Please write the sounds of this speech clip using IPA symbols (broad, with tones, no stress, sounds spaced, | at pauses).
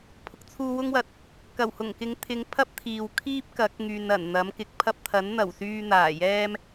pʰ ʊ˨ k̚ t͡sʰ uː˧ w ʊ˥ ŋ w ɐ˧ t̚ | k ɐ˨˩ w h ʊ˨˩ ŋ k ɪ˨˧ ŋ t̪ʰ ɪ˨˧ ŋ pʰ ɐ˥ p̚ t̪ʰ iː˨ w kʰ iː˥ p̚ k ɐ˨˥ k̚ ŋ yː˨ n ɐ˨˩ n n̪ ɐ˨˥ m k ɪ˨˥ k̚ pʰ ɐ˥ p̚ t̪ʰ ɐ˨˥ n n̪ ɐ˨˩ w s yː˧ n̪ aː˨˩ j ɛː˥ m